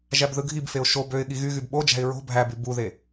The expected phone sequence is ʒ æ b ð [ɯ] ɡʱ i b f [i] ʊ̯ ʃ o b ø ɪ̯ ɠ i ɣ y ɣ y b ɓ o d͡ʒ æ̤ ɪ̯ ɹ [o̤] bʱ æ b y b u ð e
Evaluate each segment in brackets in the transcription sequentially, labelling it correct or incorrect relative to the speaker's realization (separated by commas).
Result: correct, incorrect, correct